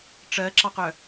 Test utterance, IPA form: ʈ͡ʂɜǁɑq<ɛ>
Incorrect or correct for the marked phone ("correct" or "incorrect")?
incorrect